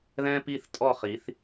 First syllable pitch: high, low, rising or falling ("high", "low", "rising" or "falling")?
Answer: high